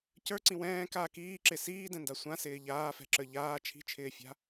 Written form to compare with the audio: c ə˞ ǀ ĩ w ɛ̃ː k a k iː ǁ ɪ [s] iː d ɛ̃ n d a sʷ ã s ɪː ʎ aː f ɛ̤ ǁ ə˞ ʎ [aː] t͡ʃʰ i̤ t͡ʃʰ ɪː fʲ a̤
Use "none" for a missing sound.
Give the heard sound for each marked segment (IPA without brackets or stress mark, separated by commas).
s, aː